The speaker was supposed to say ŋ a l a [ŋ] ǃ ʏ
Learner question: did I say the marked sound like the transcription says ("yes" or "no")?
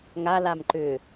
no